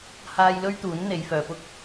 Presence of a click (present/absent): absent